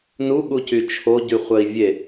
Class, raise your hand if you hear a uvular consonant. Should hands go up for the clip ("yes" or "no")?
yes